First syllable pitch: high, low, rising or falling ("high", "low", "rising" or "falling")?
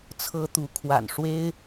high